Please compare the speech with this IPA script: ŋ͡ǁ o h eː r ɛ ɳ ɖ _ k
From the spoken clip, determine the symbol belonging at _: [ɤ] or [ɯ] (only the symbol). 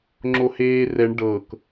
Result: ɤ